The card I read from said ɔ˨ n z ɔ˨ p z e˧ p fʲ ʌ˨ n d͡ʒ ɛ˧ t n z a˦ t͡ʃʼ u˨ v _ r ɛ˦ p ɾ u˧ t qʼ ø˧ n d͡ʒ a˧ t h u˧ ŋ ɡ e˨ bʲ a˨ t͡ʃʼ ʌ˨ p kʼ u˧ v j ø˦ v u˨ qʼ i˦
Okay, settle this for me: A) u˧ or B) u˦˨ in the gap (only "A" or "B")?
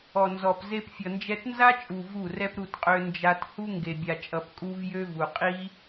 B